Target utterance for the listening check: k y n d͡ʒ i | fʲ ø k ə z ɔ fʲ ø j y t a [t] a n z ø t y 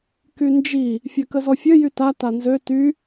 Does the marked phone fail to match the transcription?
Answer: no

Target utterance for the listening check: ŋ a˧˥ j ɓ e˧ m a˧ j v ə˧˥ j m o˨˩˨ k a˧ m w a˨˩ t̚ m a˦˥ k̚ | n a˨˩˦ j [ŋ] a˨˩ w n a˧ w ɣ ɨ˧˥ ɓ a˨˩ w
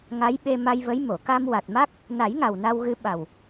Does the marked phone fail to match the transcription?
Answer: no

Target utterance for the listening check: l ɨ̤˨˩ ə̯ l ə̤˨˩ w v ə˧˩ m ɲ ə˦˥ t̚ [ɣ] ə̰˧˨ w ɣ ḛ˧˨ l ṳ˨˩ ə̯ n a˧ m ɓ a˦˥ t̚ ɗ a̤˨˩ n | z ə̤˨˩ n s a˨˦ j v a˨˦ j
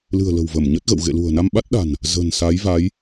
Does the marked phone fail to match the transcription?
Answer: no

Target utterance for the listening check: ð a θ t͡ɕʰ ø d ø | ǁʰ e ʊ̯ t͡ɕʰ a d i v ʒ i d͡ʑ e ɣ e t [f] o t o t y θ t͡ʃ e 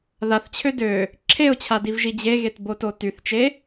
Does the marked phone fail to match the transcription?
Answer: yes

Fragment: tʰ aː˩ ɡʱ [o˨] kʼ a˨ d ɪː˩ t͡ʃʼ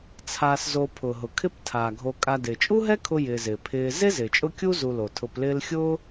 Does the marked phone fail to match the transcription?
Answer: no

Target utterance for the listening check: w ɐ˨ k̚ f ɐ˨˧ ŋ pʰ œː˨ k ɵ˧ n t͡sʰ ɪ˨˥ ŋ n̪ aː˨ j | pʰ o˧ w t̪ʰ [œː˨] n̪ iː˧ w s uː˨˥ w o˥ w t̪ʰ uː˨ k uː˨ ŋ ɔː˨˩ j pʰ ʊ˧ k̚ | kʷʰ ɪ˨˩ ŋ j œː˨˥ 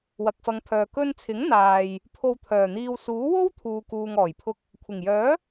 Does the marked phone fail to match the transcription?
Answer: yes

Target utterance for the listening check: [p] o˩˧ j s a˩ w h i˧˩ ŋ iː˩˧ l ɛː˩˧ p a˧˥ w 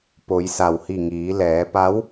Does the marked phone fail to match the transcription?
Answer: no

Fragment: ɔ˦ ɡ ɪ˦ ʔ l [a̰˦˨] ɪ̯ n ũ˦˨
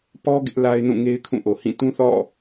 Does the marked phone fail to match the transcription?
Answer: yes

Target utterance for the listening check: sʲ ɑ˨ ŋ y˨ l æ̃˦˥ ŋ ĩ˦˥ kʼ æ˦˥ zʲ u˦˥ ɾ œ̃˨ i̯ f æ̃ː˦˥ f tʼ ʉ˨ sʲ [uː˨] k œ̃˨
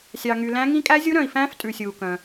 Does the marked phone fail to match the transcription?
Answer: no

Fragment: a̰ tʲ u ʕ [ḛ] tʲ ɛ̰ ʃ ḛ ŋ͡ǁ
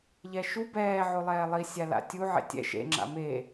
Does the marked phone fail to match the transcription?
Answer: no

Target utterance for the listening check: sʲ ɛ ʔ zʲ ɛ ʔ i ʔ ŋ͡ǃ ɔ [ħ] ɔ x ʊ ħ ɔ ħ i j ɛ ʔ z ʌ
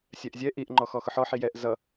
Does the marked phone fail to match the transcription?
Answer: yes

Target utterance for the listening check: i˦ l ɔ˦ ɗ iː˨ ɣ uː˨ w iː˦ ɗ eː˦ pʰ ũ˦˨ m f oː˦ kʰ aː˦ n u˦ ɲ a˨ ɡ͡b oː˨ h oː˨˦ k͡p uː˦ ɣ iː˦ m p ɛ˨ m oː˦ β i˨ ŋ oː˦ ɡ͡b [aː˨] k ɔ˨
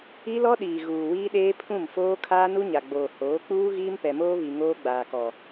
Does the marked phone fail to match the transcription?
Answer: no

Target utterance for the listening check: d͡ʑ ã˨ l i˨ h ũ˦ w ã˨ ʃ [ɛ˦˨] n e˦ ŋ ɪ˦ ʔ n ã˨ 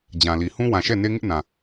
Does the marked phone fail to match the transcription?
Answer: no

